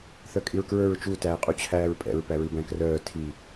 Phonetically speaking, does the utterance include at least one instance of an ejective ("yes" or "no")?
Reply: yes